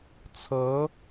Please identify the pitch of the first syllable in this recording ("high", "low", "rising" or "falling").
rising